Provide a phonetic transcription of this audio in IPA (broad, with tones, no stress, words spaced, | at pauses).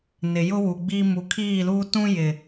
nɪ˨jʊ˦wu˨ɡ͡bi˦ mu˨kʰiː˦˨luː˦ tũ˦jɪ˨